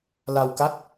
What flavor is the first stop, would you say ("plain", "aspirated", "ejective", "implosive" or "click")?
plain